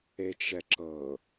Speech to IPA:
et͡ʃɛǁɤ

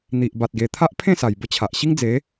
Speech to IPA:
n̪i˨ʔba˨t̚ɡe˨˩ t̪ʰa˦ʔpʰẽ˥˧ sa˨˩jbə˦t͡ɕʰa˨ʔ ɕi˦ŋd͡ze˨˦

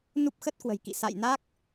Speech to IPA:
nu˦˥p̚xə˦˥t̚kwə̤˨˩jkḭ˧˨ sa̰˧˨jna˦˥k̚

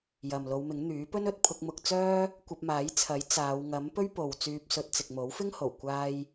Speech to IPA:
jɐ˨mlo˨˧wmɪ˨˥ŋ n̪yː˨˥pɵ˥nɵ˧t̚pʰʊ˧k̚ mʊ˧k̚t͡sœː˥ | kʷɐ˧p̚maː˨˥jt͡sʰɐ˨˥j t͡saː˨˧w ŋɐ˨˥m pɵ˥ɥpo˨w t͡syː˧p̚sɵ˧t̚ t͡sɪ˨k̚mo˨˥wfɪ˥ŋho˨˩w kʷaː˧j

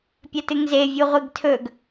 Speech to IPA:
pʲɐtɨŋze vʲuʁʷiɡtʰɵɡ

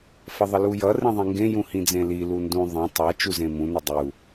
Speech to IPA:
fʌðˤəlujʌ rĩðˤĩŋɡẽ jũhĩd͡zẽli lundũ ðˤẽ tˤa t͡ʃuzẽmũ nədˤu

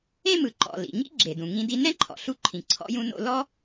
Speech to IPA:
ẽ˥mɯ˩ǃɔ̰˩ lḭ˩ɲḭ˥ ɡ͡ǁe˩dũ˩ŋĩ˧di˧ nɛ̃˥ǃʰɔ̰˩ɬu˧ǃʰĩ˩ ǀʰɔ̰˧jũ˧no̰˧ lɔ˥

